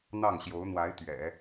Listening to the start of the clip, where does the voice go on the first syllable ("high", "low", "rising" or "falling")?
falling